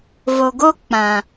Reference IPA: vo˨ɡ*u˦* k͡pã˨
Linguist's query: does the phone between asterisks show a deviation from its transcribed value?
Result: yes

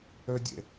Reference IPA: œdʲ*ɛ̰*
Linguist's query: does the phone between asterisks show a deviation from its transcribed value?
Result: no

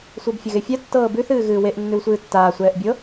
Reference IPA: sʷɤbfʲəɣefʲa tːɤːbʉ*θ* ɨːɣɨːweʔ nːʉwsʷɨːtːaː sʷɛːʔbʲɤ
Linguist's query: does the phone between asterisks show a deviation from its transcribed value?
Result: no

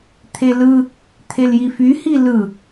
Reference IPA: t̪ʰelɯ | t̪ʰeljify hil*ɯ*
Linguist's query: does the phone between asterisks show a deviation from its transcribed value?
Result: no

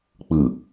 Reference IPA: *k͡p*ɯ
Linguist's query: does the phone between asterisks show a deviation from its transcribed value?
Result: no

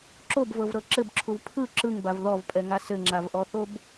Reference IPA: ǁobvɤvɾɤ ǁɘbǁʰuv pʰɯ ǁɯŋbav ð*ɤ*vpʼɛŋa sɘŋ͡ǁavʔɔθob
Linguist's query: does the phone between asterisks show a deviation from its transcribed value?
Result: yes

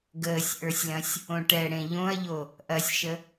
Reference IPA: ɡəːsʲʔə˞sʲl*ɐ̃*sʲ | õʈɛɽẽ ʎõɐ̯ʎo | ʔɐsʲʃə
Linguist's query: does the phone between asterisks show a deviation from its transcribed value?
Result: no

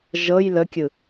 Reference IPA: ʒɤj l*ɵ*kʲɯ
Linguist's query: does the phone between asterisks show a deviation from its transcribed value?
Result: yes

